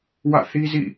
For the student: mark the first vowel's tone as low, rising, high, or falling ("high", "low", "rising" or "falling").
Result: falling